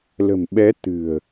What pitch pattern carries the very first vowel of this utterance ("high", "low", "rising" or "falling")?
low